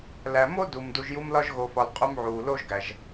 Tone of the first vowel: low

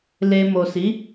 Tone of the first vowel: low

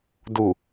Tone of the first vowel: low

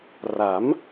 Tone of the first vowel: rising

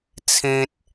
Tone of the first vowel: high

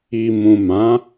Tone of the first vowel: low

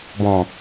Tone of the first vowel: low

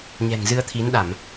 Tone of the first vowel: low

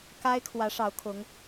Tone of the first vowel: high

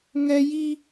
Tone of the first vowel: high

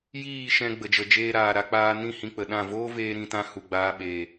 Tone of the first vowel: falling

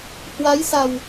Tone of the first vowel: rising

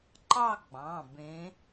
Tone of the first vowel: falling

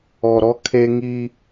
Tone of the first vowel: low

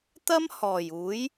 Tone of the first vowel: high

